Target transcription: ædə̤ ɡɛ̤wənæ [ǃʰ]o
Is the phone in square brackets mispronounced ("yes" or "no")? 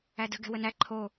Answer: no